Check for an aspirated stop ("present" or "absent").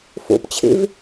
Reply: present